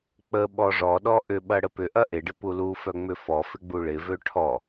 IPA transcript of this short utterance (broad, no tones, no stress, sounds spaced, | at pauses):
k͡p ə ɓ ɔ ʐ ɔ ɗ ɔ ʔ ʏ ɓ ɐ ɽ ə p ʏ ʔ ɐ ʔ ɪ ɖ ɪ p u l u f œ ŋ͡m ʏ f ɔ f ɪ ɡ͡b u ɭ ɪ v ø ʈʰ ɔ